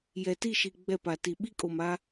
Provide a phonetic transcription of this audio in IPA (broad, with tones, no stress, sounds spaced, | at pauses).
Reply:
j ɛ˨ t i˦˨ ʃ i˨ ɡ͡b ɛ˦˨ p a˨ t i˨ ɓ i˦ kʼ o˨ m a˦